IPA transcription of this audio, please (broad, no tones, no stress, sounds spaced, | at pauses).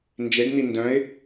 n d͡ʒ e ɖ n̪ i n d œ̃ ɪ̯